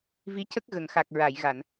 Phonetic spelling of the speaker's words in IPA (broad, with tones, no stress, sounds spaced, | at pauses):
v i˧˥ c ə˦˥ k̚ ɣ ə˨˩˨ ŋ x a˨˩ k̚ ɹ a˨˩˨ j ɣ a˨˩˨ n